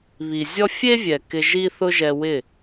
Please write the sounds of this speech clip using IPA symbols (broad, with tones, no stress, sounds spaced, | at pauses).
β i˨ zʲ ɔ˦ fʲ e˦ vʲ ɛ˨ k ɪ˧ ʒ i˦ θ ʊ˦ ʒ ɛ˧ w ɪ˦˨